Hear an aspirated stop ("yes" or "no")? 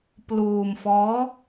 no